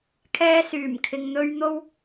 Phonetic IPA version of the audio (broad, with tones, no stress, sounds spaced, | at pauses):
kʰ ɛː˥ s yː˨˩ m kʰ ɪ˨˧ ŋ n̪ ɵ˥ ɥ n̪ o˥ w